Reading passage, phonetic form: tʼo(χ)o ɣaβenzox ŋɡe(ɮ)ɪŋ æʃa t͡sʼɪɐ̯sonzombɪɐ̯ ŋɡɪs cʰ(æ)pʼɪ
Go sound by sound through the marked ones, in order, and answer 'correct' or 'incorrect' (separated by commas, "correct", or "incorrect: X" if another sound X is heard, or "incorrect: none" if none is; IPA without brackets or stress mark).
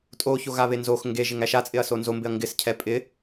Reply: incorrect: ç, incorrect: ʒ, incorrect: ɛ